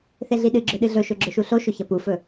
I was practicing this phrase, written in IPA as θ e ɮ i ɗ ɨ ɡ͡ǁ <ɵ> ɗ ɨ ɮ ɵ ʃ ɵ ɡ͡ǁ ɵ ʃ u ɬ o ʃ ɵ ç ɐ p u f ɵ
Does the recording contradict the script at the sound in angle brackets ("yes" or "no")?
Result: no